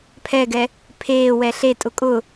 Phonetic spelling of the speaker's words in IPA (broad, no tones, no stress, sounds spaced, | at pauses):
pʰ ɛ ɡ ɛ | pʰ eː w ɛ ɬ e tʼ ʊ kʼ ʊ